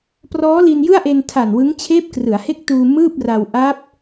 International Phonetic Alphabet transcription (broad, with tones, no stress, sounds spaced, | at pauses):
p r ɔː˦˥ l i˧ n j ɯ˥˩ a̯ ʔ e˧ n tʰ a˨˩ n w ɯ˦˥ ŋ t͡ɕʰ eː˦˥ p̚ k r ɯ˩˦ a̯ h e˥˩ k̚ t uː˧ m ɯː˥˩ p̚ r a˧ w ʔ a˦˥ p̚